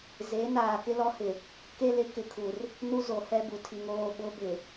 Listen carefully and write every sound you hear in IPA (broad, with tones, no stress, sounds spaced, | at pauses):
z e˨˦ n aː˨ k ɪ˦ l ɔ˦ h ɪ˨ | k e˦ l ɪ˨˦ k ɪ˨ kʰ u˨ r | n u˦ z o˨ h ɛ˦ b u˨ tʰ i˨ ŋ oː˦˨ ɓ ʊ˦ b ɪ˨